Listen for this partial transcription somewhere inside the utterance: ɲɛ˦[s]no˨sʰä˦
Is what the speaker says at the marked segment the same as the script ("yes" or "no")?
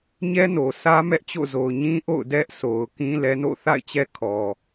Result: no